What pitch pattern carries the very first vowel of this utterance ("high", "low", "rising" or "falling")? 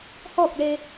falling